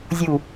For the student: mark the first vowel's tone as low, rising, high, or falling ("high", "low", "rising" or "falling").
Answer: falling